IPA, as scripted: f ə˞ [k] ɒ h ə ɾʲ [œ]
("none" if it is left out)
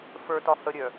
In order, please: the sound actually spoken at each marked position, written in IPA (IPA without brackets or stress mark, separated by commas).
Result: t, œ